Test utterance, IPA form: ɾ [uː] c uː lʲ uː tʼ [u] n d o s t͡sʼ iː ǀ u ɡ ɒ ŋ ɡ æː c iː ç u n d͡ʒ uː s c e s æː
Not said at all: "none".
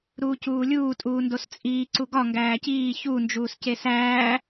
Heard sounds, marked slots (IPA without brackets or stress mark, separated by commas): uː, uː